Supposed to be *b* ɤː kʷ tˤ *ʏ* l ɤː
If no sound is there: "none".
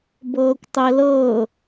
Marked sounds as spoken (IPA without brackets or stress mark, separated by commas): b, ɛ